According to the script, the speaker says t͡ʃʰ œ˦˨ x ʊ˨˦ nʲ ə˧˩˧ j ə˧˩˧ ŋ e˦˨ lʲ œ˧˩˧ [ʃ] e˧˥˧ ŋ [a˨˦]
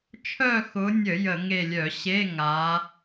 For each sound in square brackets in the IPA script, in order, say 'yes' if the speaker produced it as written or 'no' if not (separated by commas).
no, yes